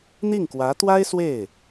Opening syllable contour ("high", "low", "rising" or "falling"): falling